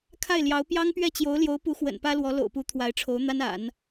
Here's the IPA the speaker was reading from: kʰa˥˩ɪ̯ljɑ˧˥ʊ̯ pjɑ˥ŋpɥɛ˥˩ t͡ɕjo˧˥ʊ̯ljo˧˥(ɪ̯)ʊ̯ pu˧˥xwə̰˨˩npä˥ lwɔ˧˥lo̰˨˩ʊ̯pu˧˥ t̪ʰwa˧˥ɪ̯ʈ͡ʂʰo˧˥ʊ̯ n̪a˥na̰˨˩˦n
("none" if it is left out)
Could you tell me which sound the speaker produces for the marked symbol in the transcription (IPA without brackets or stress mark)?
none